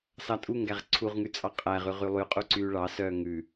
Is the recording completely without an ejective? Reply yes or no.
no